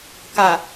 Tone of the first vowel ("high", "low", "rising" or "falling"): low